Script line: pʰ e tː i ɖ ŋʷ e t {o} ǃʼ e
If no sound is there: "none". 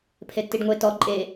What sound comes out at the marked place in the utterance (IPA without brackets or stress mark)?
ɔ